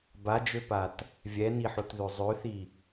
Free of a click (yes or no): yes